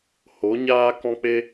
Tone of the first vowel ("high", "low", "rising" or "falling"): rising